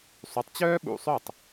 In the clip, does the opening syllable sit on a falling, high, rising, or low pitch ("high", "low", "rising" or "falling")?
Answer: rising